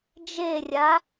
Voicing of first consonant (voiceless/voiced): voiced